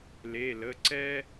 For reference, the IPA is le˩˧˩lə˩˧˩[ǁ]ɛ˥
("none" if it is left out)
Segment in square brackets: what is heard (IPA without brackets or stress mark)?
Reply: ǀ